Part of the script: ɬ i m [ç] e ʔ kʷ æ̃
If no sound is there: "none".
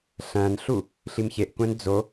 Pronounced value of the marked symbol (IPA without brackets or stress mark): ç